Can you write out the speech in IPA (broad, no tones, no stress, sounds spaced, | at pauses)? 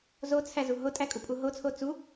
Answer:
z o t͡sʰ æ z u ɦ o tʼ æ kʼ u pʼ u ɦ o t͡sʰ o t͡s u